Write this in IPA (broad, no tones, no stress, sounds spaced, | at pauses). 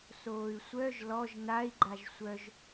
s oː y̯ sʷ œ ʒ l ɔ ʒ n a i̯ ɡ͡ǃ a ʒ sʷ œ ʒ